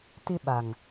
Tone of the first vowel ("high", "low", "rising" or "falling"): high